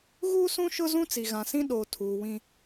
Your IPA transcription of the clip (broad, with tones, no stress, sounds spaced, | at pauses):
ɣ uː˦ s ũ˦ ʃ ʊ˦ z ũ˦ t͡s i˨ ɣ ã˨ s ĩ˦ ɗ o˨ tʰ uː˨ w ĩ˦